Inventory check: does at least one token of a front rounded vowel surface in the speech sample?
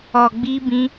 no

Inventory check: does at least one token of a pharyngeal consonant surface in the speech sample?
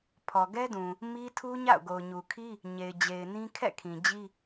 no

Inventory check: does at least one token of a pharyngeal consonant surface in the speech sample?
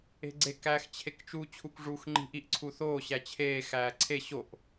no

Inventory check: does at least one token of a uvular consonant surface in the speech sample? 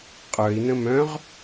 yes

